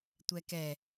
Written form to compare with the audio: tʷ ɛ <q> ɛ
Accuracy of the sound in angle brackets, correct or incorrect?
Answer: incorrect